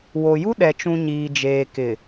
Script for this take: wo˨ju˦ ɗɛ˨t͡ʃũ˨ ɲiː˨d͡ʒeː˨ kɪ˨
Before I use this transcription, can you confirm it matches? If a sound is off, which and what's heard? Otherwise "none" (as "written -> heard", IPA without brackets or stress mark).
none